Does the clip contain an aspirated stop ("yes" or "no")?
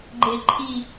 yes